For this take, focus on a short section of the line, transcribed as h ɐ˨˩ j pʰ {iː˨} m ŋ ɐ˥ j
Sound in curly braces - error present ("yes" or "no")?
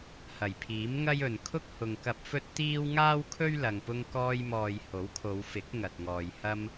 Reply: yes